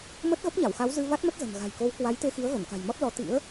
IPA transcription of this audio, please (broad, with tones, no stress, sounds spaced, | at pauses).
m ə˦˥ t̚ ɣ ə˦˥ p̚ ɲ a˧˩ w x a˨˦ w z ɨ˧ v a˦˥ t̚ m ə˦˥ t̚ z ə̤˨˩ n ɣ a̤˨˩ j k o˨˦ w k w a˨˦ j t̪ e˧ x i˨˦ ə̯ ɣ ə˧˩ n k a̤˨˩ j m ɔ˦˥ t̚ l ɔ˨˦ t̪ ḭ˧˥ ə̯